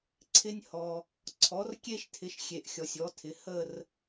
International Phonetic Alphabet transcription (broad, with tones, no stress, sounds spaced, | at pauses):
ǀʰ ɪ˥ nʲ h ɔ˨ | ǀʰ ɔ˩˥ r kʲ e˥ ʃ tʰ ɪ˩˥ ʃ xʲ e˨ ʔ xʲ ɔ˨ sʲ ɔ˩˥ tʰ ɪ˩˥ h ə˥˧ r